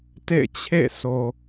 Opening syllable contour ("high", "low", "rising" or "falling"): falling